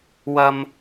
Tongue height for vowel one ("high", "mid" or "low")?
low